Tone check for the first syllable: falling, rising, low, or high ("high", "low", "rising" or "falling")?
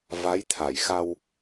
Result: rising